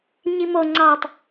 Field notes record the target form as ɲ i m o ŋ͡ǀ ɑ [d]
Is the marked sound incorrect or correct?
incorrect